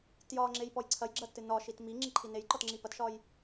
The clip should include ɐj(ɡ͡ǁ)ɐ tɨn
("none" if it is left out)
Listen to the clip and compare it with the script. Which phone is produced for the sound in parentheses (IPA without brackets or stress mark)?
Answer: ɡ͡ǁ